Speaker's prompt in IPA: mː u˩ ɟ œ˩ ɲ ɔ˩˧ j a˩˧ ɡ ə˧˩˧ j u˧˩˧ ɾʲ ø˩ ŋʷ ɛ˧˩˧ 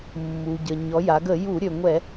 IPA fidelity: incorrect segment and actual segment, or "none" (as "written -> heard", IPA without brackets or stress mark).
œ˩ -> ə˩